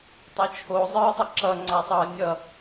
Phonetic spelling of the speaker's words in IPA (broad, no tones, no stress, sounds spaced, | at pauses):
tˤ ʌ t͡ʃʰ o zˤ ɯː sˤ ɐ ǁ ʌ ŋ͡ǀ a sˤ ʌː nʲ ʌ